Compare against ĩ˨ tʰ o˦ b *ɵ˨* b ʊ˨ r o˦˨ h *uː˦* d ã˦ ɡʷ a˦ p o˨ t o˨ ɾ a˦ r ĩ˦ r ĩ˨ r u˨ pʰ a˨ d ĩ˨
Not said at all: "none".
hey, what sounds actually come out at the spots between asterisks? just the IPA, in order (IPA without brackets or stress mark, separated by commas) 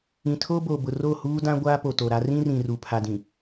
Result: o˨, uː˦